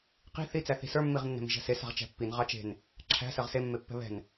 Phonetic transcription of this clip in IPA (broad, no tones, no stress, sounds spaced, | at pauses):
q i̤ θ i t͡s æ θ i̤ s ə˞ mː i ʁ nː ɛ̤ m i̤ ʒ æ̤ s e s a̤ ʁ t͡ʃ æ̤ pː i n ʁ ɑ t͡ʃ e̤ n | ǁʰ æ̤ s ɜ ʁ s e mː e pː ɛ̤ β ɛ̤ n